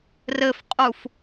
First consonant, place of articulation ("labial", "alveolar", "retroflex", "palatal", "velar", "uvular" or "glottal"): alveolar